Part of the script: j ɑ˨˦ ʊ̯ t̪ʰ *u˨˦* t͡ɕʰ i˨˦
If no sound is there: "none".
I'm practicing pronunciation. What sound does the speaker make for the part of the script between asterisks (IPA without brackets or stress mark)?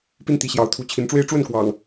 u˨˦